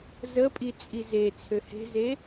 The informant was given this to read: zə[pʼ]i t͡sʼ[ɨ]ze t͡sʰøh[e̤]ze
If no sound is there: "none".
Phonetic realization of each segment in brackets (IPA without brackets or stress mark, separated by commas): pʼ, i, e̤